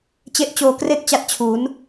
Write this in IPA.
t͡ɕ e˦˥ ʔ t͡ɕ oː˧ k r e˥˩ k̚ t͡ɕ a˦˥ t̚ t͡ɕʰ u˩˦ n

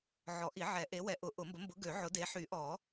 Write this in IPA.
ʕ ɔ˨˩˦ ʔ i˨˩˦ ʕ ɛ˨˩˦ ʔ e˨˥ w ɛ˨˥ ʔ ʊ˨˩˦ ʔ ʊ˨˩˦ m b ə˨˥ m b ʊ˨˥ ɡ ø˨˩˦ ʕ ʊ˨˥ d e˨˥ ħ y˨˩˦ ʔ ɔ˨˩˦

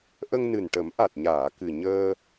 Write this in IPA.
ʔ ə˧ ŋ n ɨ˨˩ n ʈ ə˨˩˦ m ʔ a˨˩ t̚ ɲ aː˨˩˨ k ɨ˨˩ ɲ əː˧

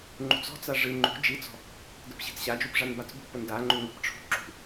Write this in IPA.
ŋ͡ǃ ṳ t͡s ɔ̤ t͡s a ʐ ɨ ŋ͡ǃ ṳ d͡ʒ i t͡s ɔ̤ | d ə p ɕ i̤ t͡s ɕ a d͡ʒ u p ʐ a n b a t͡s b ṳ p ə n d a ŋ͡ǃ u ŋ ə̤ p ʈ͡ʂʰ ṳ ǁ ṳ

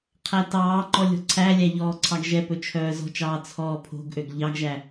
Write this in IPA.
qʰ æ t ɑː ŋ͡ǃ ɔ lʲ ɔ̤ ǀʰ æ lʲ æ ʎ ɔː ǀʰ ɑ ɡ ʒ ɛ p ɵ t͡ʃʰ œː z ɔ̤ t͡ʃ ɑː t͡sʰ ɔː pʰ o̤ ɡ ʔ ø ɡ ʎ ɑ ɡ ʒ æ

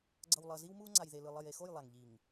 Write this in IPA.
ɡ͡ǀ ʌ˨ w lˠ ʌ˨ z i˦ w m u˦ ŋ͡ǀ a˨ j ð e˨ l ɯ˨ lˠ ʌ˨ j e˨ x o˦˨ j lˠ a˨ ŋ ʎ i˨ ŋ

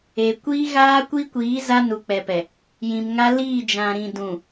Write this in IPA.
e˨ kʷ iː˦ ɣ aː˦ kʷ i˦ kʷ iː˨˦ z a˦ n u˨ k͡p ɛ˨ p ɛ˨ | j ĩ˨ m ŋ a˦ l iː˦˨ d͡ʒ ã˨ ɾ ĩ˨ d ũ˨

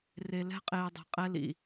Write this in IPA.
r e˧ l ɛ̤˦ qʼ eː˧ dˤ e̤˧ qʼ ɛ˦ l ḭ˧

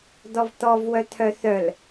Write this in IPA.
d̪ ɔ v t̪ ɔ v w œ t̪ʰ œ θ œ l

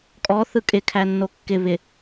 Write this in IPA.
kʼ ɔ θ ɯ kʼ ɪ kʰ æ nː o kː ɪ β ɪ

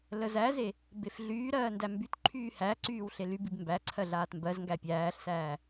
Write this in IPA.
l ə z æ z e | b e f ɮ yː ɾ ɜː n d æ m b y t ǃʰ yː h æ ǀ yː w ɬ e l y b i b m b æ ǀʰ ɜ ɮ aː t m b ɜ z ŋ ɡ æ pʲ æː ɬ s æː

